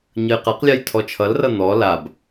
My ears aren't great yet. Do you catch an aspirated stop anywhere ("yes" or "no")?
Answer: yes